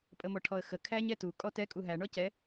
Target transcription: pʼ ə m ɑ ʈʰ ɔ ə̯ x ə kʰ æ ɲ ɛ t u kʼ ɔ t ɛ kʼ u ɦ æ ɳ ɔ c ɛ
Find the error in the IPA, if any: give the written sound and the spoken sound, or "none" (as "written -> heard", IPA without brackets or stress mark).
ɑ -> ɔ